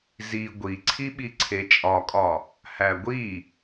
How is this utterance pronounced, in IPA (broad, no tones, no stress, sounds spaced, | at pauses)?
z i ɡʷ i ǀʰ i ɓ i ǀʰ e t͡ʃʼ ɒ kʼ ɒ | h æ ɡʷ i